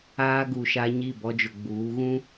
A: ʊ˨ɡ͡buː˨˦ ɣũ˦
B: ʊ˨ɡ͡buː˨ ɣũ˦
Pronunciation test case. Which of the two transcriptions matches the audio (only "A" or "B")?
A